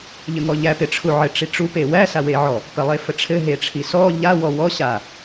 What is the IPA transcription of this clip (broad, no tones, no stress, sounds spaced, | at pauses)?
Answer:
ʎ ə ŋ ɔ ʎ æ p ɪ ʈ͡ʂʰ u ʕ ɘ ʈ͡ʂ i ʈ͡ʂ u p e w æ s a w e ʕ ɔ | p ə lˠ e f ə ʈ͡ʂʰ ɘ ɦ e ʈ͡ʂʰ i s ɔ ʎ a w ɔ w ɔ ɕ a